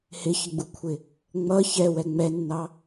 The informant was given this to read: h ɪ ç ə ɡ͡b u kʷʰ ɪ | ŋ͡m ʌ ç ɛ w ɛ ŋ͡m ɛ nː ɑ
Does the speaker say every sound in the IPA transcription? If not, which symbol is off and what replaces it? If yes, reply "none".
none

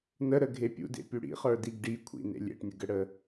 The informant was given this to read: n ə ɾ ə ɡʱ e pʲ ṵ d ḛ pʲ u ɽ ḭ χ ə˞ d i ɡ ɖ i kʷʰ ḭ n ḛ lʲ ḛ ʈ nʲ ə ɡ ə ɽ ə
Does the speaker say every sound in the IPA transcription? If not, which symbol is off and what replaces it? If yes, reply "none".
none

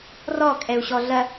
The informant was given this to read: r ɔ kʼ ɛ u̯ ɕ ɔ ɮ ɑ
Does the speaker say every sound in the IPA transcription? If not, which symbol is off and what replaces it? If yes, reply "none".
ɑ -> ɐ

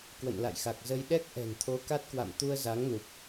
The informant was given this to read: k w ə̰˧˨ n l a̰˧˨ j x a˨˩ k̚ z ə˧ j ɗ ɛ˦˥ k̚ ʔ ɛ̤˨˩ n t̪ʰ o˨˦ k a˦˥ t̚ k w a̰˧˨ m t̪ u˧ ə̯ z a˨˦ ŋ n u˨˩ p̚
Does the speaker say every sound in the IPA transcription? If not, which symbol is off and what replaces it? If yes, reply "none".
none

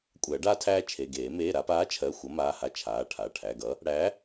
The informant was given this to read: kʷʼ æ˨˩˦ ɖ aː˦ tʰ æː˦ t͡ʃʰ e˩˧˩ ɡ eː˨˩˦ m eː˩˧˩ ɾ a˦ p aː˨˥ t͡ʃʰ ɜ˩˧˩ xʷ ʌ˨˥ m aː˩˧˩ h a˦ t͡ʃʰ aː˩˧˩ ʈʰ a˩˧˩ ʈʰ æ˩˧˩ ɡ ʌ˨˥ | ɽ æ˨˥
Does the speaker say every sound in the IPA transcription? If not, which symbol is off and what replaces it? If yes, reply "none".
none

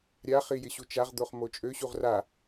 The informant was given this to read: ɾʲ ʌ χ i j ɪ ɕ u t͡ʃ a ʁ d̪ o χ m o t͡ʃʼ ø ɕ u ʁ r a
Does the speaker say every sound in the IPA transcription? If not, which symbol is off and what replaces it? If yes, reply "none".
ʌ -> a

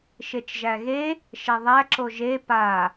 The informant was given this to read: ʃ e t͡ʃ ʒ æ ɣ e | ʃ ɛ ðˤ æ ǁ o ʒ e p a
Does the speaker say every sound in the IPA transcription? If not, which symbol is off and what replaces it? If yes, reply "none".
none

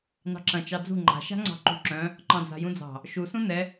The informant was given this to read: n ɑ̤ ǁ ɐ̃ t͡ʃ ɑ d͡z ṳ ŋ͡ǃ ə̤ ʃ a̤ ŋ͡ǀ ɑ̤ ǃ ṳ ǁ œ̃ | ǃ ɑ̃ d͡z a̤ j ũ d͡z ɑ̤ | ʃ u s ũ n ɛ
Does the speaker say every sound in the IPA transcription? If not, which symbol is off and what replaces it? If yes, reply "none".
ə̤ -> a̤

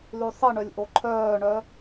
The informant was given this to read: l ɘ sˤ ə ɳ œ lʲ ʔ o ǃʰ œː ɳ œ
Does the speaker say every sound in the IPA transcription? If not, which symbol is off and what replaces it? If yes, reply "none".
ɘ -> ʉ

